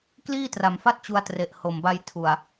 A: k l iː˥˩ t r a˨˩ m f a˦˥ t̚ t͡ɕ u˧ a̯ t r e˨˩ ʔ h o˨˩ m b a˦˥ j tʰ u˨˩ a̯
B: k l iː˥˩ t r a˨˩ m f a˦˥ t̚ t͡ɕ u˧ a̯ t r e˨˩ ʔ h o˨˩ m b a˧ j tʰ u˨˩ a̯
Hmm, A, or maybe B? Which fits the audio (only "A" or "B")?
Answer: B